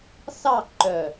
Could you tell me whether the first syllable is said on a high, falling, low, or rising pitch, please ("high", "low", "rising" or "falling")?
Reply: falling